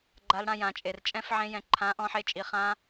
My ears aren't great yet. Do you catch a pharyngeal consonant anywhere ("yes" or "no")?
yes